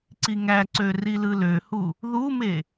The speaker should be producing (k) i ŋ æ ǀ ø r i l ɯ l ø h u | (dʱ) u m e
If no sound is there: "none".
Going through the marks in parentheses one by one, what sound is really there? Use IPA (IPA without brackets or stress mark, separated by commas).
ǀ, ð